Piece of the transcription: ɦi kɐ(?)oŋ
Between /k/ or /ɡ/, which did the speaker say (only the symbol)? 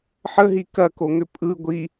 k